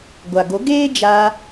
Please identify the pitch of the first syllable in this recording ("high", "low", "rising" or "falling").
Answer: low